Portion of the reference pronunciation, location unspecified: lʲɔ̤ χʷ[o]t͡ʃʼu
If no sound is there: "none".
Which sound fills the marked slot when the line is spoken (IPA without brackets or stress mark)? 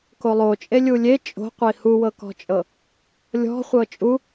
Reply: ɤ